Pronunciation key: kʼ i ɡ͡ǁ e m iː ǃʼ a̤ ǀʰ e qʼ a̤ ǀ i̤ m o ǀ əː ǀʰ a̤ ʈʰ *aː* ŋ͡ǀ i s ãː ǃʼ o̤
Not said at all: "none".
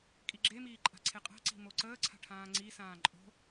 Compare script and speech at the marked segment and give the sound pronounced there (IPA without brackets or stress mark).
ãː